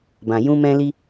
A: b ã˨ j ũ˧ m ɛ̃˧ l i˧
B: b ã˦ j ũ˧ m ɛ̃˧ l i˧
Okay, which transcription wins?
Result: A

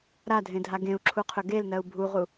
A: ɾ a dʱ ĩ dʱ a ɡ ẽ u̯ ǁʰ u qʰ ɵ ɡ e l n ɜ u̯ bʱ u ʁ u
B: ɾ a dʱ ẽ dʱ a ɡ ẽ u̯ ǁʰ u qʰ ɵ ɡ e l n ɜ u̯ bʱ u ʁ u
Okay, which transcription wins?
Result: B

